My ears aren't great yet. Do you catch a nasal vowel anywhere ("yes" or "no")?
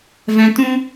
yes